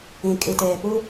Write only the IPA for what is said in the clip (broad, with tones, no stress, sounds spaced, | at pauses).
ĩ˨ kʼ i˨ t eː˨ p u˦